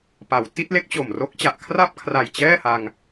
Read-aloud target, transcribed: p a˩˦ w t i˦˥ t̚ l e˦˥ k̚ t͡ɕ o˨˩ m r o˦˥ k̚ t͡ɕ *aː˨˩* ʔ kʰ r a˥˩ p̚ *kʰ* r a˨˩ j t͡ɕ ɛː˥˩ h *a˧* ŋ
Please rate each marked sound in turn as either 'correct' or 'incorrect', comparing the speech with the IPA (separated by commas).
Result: incorrect, correct, correct